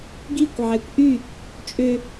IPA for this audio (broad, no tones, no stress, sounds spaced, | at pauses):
ɡ i kʷ ʕ æ kʷ ʔ y | t͡ʃʼ ø